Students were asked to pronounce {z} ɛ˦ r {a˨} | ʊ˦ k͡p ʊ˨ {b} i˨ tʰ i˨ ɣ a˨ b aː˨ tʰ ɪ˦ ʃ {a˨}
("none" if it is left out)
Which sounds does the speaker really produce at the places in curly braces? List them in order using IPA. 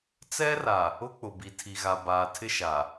t͡s, a˨, b, a˨

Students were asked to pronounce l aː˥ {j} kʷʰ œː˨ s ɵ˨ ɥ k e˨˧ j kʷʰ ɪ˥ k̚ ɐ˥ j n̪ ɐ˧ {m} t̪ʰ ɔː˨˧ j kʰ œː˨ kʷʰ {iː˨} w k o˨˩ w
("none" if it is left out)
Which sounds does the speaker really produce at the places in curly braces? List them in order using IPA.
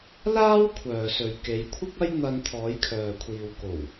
w, n, iː˨

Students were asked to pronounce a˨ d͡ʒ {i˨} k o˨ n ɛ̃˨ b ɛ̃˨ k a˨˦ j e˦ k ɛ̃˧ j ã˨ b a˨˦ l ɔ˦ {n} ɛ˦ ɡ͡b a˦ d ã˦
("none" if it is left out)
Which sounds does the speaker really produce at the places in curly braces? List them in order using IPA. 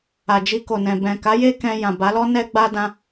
i˧, n

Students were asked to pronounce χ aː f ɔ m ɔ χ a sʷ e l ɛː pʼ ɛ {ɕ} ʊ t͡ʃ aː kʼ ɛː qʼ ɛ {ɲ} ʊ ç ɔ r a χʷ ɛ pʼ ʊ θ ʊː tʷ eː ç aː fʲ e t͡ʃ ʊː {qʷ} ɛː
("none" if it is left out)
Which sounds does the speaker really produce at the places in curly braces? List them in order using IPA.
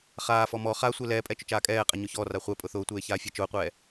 t͡ʃ, ɲ, qʷ

